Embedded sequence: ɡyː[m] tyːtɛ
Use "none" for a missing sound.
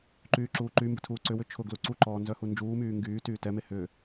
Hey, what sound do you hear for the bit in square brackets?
none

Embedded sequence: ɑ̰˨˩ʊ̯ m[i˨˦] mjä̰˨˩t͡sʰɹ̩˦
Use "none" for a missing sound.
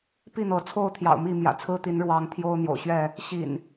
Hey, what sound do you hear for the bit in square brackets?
i˥˨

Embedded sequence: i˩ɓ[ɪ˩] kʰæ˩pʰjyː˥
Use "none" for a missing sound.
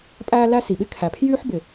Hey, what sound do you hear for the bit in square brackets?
ɪ˥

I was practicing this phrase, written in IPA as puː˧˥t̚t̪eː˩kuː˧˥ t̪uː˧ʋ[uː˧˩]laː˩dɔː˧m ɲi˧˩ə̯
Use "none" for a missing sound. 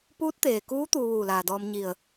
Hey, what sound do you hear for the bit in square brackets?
uː˧˩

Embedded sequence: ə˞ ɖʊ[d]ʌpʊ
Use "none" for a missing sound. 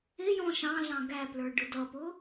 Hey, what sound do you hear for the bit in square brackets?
d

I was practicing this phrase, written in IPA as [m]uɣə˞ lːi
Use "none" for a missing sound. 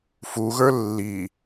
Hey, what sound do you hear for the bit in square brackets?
f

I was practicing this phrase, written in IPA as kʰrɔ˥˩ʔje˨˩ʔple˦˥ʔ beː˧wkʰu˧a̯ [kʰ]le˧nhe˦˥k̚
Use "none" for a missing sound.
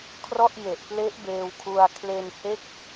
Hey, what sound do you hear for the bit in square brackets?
kʰ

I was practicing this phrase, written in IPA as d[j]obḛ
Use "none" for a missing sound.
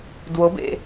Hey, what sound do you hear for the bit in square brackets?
w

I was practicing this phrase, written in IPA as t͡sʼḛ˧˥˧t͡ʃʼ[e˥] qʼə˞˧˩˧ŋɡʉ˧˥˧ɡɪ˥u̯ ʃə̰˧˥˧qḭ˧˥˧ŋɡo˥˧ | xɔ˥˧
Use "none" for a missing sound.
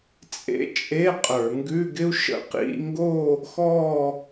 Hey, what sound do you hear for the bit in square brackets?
e˧˥˧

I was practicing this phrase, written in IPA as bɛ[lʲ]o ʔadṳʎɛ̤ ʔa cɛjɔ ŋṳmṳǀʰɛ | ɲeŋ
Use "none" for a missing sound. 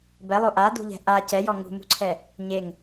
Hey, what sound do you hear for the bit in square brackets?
lˠ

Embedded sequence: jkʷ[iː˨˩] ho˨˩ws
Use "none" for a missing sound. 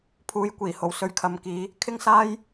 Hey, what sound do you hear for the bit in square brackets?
iː˨˩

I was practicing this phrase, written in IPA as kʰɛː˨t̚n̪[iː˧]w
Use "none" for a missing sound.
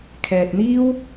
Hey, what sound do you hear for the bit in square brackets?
iː˥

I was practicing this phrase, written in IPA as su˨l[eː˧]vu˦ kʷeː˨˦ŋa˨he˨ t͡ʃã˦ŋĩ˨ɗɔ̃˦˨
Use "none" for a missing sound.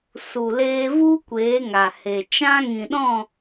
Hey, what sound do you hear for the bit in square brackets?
eː˧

